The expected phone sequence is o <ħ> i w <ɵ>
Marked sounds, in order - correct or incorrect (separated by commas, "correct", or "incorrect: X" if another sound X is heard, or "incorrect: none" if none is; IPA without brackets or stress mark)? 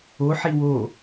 correct, incorrect: o